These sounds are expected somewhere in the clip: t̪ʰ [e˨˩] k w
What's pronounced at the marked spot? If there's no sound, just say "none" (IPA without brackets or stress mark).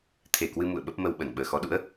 e˧˩